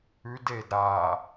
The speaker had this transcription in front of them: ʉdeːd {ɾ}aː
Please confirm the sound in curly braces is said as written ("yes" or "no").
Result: yes